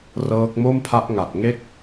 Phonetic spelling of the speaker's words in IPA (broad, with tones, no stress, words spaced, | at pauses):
rɤː˦˥k̚ mo˥˩mpʰa˦˥ʔ ŋa˨˩t̚ ŋe˥˩k̚